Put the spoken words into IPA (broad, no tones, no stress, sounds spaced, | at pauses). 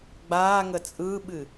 ɡ͡b aː ŋ ə t͡sʼ ɯ ɓ ɨ